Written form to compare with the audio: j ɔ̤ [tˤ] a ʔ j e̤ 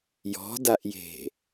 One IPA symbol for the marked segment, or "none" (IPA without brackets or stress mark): d